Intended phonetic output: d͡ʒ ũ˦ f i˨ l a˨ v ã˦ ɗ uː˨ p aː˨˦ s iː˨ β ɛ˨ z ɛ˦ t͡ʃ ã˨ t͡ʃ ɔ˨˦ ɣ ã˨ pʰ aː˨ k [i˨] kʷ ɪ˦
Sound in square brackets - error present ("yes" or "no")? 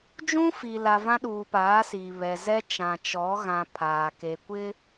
yes